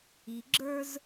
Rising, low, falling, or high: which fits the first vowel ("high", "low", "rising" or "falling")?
low